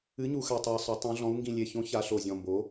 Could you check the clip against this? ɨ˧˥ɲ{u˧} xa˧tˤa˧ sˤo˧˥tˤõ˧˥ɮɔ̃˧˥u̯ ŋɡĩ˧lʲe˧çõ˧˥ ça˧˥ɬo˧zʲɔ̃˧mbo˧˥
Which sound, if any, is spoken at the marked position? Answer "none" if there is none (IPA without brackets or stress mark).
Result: u˧